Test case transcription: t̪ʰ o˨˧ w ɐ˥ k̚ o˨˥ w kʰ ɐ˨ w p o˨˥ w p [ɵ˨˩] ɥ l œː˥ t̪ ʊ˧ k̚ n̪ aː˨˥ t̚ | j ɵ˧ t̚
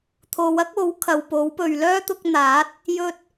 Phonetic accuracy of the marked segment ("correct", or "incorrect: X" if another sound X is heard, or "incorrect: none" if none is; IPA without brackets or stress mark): incorrect: ɵ˨